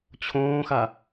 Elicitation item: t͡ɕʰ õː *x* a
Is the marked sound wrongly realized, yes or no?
no